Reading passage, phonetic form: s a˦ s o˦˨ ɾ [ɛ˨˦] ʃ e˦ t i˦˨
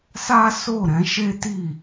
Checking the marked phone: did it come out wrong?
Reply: yes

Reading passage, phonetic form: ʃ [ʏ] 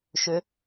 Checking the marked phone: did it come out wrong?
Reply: no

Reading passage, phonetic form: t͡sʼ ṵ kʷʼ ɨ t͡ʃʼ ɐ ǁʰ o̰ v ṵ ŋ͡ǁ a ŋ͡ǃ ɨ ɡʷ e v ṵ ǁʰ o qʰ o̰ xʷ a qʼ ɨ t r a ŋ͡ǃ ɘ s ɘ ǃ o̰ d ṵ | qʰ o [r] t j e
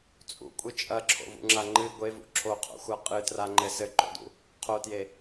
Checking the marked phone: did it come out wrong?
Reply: yes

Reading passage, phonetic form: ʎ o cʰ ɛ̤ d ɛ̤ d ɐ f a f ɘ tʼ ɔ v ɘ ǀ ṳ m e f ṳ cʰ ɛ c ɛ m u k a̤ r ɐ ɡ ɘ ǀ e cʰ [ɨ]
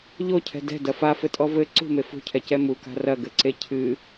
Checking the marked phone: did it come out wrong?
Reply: no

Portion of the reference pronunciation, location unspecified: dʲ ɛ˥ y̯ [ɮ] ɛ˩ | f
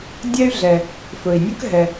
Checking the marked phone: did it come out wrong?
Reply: no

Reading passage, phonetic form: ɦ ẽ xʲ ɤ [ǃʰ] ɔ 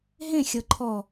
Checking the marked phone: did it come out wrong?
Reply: no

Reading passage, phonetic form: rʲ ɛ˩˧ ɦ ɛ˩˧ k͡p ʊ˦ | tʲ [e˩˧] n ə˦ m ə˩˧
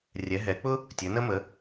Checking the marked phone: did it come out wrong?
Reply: yes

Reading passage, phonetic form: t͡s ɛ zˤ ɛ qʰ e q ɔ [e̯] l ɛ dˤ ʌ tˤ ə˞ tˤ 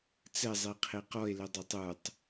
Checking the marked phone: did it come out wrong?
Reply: no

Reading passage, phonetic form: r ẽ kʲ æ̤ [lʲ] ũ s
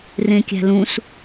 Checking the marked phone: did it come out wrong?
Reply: yes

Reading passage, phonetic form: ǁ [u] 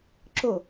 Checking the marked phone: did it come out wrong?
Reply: yes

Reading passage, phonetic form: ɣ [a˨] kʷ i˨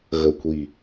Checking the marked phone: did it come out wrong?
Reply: yes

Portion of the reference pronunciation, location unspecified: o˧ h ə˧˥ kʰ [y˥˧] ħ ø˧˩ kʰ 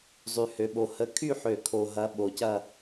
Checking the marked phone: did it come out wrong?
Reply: no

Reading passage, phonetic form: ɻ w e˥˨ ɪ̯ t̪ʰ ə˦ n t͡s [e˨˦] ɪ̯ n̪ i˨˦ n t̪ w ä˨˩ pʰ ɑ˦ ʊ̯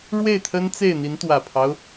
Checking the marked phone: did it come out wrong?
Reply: yes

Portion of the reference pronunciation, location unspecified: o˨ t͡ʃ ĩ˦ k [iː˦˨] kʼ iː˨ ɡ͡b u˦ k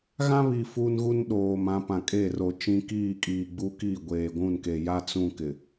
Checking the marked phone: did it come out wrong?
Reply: no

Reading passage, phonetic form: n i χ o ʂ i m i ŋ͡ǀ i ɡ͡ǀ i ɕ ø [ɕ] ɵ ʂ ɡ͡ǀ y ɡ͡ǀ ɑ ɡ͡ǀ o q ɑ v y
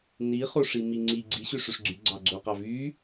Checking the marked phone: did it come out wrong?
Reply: yes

